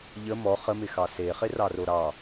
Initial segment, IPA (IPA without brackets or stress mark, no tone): ʎ